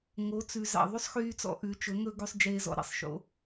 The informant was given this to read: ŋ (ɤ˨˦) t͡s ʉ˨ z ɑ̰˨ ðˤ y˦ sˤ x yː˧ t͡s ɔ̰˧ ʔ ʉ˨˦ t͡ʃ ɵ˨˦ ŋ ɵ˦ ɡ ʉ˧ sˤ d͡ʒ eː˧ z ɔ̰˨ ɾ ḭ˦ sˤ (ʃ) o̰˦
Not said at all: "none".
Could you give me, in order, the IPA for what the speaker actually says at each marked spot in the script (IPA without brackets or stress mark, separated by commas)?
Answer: o˨˦, ʃ